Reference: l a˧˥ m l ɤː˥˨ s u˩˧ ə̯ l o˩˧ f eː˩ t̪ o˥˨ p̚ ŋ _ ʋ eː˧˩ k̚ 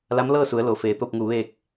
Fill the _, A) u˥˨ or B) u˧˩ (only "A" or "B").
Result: B